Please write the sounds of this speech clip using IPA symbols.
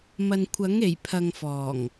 m ɐ˨ n kʷʰ ɐ˨˥ ŋ e˨˩ j pʰ ɐ˨ ŋ f ɔː˨˩ ŋ

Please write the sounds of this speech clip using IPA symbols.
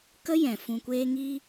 k ə˦ j ɛ̃˨ f ũ˨ kʷ eː˧ ŋ iː˧

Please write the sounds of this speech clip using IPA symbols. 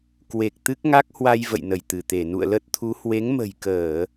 k w e˨˩ k̚ t̪ ɨ˦˥ k̚ ŋ a˦˥ k̚ h w a˧ j v ə̰˧˨ j n ə˧˩ j t̪ ɨ˧˩ t̪ e˧˩ n ṵ˧˨ ə̯ l ə˦˥ t̚ t̪ʰ u˨˦ h w e˨˦ ŋ m ə̤˨˩ j k əː˧˩˨

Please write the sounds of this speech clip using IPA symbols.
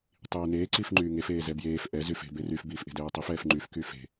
tˤ iː n eː ǀ i f ŋ͡ǃ yː ŋ e f eː z ɛ b j eː f ʔ ɛ z y f e̤ b e r y f b iː f ʔ e̤ d ɛː tˤ i f ɛː f ŋ͡ǃ y f k y f e̤

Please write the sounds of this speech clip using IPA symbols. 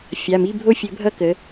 fʲ a˩˧˩ m i˧˥˧ bʱ o˦˨ fʲ ɘ˨˩˦ bʱ ʌ˦˨ k ə˨˦

